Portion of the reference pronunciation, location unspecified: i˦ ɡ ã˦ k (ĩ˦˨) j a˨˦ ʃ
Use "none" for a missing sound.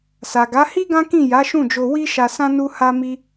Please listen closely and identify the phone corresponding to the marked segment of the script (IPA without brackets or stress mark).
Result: ĩ˦˨